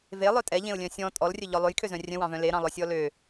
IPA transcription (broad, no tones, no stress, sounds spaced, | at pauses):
v e lˠ œ tʼ ɛ ʎ ẽ ʊ̯ lʲ œ̃ sʲ ɔ̃ tʼ ɔ l rʲ œ ʎ ɔ lˠ ø j kʰ ø z œ̃ rʲ œ̃ w ɑ̃ v œ̃ l e ɾ ɑ̃ lˠ œ sʲ ɔ l ø